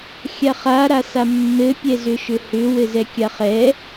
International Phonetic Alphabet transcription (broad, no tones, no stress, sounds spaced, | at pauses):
xʲ a χ a ɾ a s a mː ɘ pʲ ɛ z ʏ ʃ ʏ h ʏ w ɘ z ɛ kʲ a χ ɛ